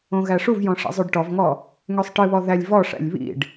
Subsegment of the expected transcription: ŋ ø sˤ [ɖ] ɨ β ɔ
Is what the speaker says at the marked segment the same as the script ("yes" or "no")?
no